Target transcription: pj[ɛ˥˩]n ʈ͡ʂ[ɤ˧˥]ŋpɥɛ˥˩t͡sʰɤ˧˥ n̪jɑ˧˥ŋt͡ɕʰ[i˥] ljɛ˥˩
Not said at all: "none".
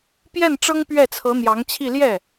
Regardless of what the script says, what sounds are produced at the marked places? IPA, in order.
ɛ˥˩, ɤ˥, i˥˧

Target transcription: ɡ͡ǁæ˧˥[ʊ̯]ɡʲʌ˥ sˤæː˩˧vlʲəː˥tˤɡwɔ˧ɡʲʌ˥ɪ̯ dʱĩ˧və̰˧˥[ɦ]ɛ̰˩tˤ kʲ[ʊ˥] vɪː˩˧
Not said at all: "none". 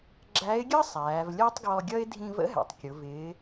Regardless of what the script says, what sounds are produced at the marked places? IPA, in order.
ɪ̯, ɦ, ʊ˩˧

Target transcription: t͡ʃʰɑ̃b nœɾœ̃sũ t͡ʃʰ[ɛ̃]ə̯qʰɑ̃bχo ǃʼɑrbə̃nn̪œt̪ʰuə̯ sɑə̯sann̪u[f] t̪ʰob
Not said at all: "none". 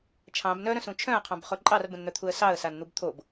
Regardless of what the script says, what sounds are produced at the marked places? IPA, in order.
œ̃, b

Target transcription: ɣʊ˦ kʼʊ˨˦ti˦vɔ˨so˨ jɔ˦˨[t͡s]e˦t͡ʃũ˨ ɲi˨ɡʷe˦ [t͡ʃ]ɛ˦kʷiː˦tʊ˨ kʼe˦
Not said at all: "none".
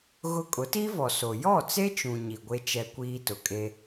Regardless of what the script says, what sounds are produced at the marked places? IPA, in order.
t͡s, t͡ʃ

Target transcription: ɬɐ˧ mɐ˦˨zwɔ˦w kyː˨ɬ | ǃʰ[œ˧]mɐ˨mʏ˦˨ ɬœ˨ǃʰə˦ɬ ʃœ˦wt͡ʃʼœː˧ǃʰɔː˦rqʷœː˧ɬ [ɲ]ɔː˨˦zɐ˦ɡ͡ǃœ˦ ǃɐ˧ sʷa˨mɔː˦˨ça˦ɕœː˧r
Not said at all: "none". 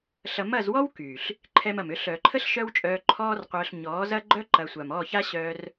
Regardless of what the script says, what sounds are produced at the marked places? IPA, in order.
ɛ˧, ɲ

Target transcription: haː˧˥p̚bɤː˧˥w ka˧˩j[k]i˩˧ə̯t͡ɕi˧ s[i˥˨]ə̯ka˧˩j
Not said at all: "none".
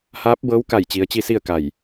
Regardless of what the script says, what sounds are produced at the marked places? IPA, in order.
t͡ɕ, i˥˨

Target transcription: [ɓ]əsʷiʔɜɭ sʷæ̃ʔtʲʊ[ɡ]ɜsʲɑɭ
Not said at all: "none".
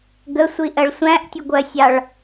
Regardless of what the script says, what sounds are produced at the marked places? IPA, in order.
ɡ, ɡʷ

